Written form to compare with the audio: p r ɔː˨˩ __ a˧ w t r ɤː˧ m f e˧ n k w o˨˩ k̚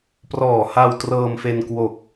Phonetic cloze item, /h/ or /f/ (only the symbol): h